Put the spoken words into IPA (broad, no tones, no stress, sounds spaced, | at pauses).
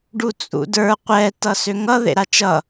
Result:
ɖ u t͡sʼ ṵ d ə˞ qʷ ɛ t ʌ s ø ŋ ʌ ð ḛ ɾ a t͡ʃ ʌ